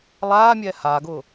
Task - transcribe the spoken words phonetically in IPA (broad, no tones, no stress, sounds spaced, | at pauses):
lˠ aː mʲ ɛː h a ɡ ʊː